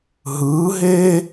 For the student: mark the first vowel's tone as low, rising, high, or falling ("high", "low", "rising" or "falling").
rising